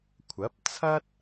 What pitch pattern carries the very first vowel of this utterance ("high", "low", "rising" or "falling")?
rising